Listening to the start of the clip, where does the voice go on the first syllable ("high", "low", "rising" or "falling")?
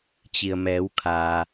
low